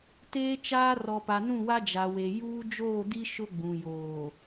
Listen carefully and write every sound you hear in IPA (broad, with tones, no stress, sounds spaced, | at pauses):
t eː˦ t͡ʃ aː˦ r ɔ˨ p a˨ n ũ˦˨ w a˦ d͡ʒ a˨ w e˨ j uː˦ d͡ʒ oː˦˨ d i˦ ʃ ʊ˦ ɡ͡b ũ˨ j oː˨